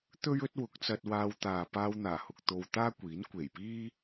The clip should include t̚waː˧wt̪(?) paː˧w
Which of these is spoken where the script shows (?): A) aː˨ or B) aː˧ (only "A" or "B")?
A